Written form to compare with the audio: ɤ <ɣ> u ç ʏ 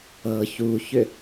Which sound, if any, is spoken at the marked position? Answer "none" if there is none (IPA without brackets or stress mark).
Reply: ç